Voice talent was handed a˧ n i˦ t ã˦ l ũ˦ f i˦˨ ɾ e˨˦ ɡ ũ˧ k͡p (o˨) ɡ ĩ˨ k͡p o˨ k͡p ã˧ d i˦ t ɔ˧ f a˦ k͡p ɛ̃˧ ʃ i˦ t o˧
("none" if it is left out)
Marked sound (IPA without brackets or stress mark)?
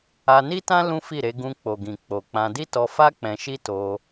o˨